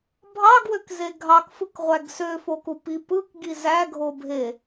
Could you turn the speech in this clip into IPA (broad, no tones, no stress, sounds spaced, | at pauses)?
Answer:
bʱ ɑ ɡ w ø k z e ɡʱ ɑ k f ɯ k ʁʷ æ ɡ s ø f o k u p i p ɯ k ɡ i z æ ɡʱ o bʱ e